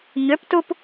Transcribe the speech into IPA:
ɲøptup

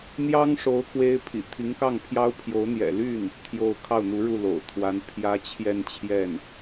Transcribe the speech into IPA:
n̪jɑ˥ŋʂo˧˥ʊ̯ kwe˥ɪ̯ pʰḭ˨˩t̪ʰi˧˥ŋkɑ˥˩ŋpʰjɑ˥ʊ̯ pʰjo˧˥ʊ̯n̪jɛ̰˨˩ly˥˩n | t̪ʰjo˥˧ʊ̯ kʰɑ˥˩ʊ̯n̪u˧˥ɻu˥˩ lo̰˨˩ʊ̯t̪ʰwa˥n pʰjä˥ t͡ɕʰjɛ˥˧nt͡ɕʰjɛ˥˩n

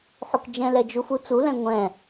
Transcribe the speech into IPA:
ħukd͡ʒɛ̃lɛd͡ʒu fut͡sulɛ̃ ŋʷɛ̃

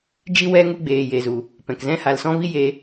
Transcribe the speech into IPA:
d͡ʒi˧wɛ˧ ŋu˧ɡ͡beː˨ je˨zu˨ | pɛ̃˨k zɛ̃˨˦ha˨lsɔ̃˧vi˧ je˧

